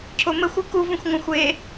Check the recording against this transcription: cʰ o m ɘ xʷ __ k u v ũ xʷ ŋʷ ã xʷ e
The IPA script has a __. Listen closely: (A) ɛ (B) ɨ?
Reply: B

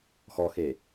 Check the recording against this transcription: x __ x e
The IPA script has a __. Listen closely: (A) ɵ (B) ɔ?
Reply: B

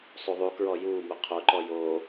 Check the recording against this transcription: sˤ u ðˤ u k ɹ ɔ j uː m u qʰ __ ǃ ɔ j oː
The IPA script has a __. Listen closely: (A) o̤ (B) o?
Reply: B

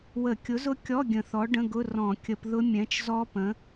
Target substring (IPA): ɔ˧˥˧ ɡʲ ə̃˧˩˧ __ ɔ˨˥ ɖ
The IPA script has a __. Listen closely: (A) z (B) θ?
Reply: B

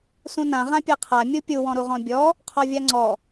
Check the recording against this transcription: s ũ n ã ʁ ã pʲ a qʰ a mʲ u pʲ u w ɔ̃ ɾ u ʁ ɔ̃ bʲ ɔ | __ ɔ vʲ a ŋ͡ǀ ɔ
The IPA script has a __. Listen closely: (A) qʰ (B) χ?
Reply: A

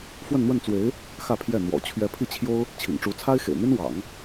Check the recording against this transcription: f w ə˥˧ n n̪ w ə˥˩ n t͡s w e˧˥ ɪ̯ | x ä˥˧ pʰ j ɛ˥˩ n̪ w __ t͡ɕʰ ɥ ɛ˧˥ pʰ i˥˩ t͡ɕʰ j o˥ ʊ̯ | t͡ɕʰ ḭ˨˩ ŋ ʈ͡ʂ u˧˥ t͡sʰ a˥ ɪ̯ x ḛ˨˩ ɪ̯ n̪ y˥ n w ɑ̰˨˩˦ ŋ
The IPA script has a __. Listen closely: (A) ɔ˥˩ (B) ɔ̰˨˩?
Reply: B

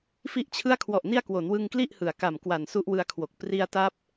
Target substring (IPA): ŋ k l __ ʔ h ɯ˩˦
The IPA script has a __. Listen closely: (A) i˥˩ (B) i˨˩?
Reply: A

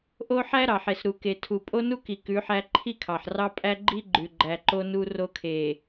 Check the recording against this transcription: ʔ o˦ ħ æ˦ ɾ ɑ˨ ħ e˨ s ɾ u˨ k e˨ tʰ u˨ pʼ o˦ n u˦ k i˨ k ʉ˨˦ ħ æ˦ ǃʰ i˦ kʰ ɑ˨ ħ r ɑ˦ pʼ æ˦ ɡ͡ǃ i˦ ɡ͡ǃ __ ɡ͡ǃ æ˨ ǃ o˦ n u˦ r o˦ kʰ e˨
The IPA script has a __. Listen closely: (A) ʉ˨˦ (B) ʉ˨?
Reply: B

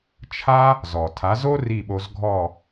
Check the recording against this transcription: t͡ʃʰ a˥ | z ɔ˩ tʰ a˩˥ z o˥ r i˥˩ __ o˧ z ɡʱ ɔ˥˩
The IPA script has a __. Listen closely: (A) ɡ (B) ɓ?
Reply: B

